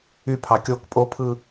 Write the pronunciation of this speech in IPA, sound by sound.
ypʰɑ kʲok pʼopʰɯ

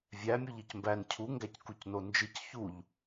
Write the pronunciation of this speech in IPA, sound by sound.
vʲæ mʲuʎicmbæn cʰu ŋɡæckucnond͡ʒɨc çuʎ

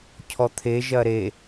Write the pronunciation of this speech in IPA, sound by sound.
cʰɔt̪ʰe ʒɐɾe

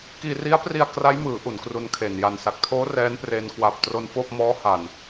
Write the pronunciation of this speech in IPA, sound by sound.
kiː˧ri˦˥a̯pri˧a̯ kra˦˥jmɯː˩˦ ʔu˩˦nkru˧nkʰe˨˩n ja˨˩nsa˨˩k̚tʰoː˦˥ rɛː˦˥npre˧n kwa˨˩p̚tro˧nfoː˥˩p̚ mɔː˦˥ha˨˩n

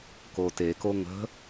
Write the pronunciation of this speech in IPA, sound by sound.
koːteko ŋə̤

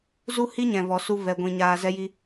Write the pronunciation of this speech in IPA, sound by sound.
zu˦hi˦ ɲɛ̃˨vɔ˨su˧ vɛ˧ɡʷĩ˧ ɲaː˧zɛ˦ji˦

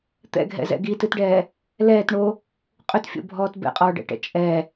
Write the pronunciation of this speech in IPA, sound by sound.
t̪ɛ̰ɡʱɛ̰zɛ̰ ɡitɨtɖɛː | lɛːtɳo | qʼʏtfʲo̰bʱɔːt bɛ̰qʼɔːɖɛ̰ʈɛ̰ t͡ʃʼɛ

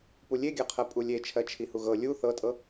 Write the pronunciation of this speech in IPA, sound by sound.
pulʲeɡʲɜqʰɜ pʼulʲe t͡ʃʰɜt͡ʃʰihuɣɤ lʲu θɤtʼɤ

